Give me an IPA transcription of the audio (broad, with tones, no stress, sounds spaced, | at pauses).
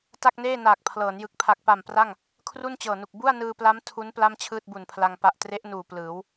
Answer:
t a˥˩ k̚ n eː˥˩ n aː˨˩ k̚ pʰ l ɤː˩˦ n j ɯ˨˩ k̚ pʰ a˨˩ k̚ p a˨˩ m p r a˥˩ ŋ | kʰ r u˥˩ n t͡ɕ ɤː˨˩ n u˨˩ k̚ b u˥˩ a̯ n ɯː˧ p l a˦˥ m tʰ u˦˥ n p l a˥˩ m t͡ɕʰ ɯː˥˩ t̚ b u˨˩ n pʰ l a˧ ŋ p a˨˩ ʔ t r e˦˥ ʔ n uː˨˩ p l ɯː˩˦ w